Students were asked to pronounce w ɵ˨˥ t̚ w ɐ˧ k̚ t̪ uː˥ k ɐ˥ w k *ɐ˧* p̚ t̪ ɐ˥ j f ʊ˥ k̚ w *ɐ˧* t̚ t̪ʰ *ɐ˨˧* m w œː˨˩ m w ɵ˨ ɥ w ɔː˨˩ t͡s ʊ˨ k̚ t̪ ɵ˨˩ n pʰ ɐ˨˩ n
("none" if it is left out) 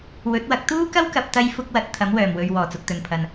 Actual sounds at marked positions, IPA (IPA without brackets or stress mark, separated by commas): ɐ˨, ɐ˧, ɐ˨˥